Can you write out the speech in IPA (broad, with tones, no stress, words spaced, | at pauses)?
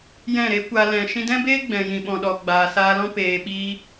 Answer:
jɛ̃˦˨ɾe˦kʷa˧ lɛ̃˨ ʃĩ˧dɛ̃˦beː˦ ɡ͡bɛ̃˨jĩ˨ ɓɔ̃˨ɗɔ˨ ɡ͡baː˨saː˧lɔ̃˦ peː˨ɓiː˧